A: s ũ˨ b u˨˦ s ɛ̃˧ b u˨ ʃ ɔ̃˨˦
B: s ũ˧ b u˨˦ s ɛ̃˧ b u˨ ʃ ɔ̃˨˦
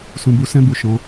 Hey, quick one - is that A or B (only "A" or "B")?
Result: A